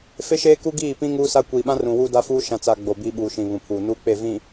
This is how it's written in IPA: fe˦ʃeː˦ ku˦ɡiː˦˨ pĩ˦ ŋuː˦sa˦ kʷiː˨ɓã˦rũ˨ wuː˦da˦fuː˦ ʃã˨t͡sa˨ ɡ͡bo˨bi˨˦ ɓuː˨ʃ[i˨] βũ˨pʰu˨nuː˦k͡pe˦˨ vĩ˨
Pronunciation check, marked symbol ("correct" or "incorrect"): incorrect